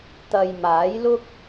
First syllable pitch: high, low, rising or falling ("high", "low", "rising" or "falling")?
low